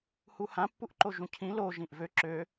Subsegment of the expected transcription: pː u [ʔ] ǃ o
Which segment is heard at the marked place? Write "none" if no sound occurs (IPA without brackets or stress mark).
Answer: ʔ